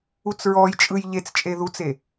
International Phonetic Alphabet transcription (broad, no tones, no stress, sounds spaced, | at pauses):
u t͡s ɹ ɔ j t͡ʃʼ ɯ j ʎ e t͡s t͡ʃʼ e ð u t͡s e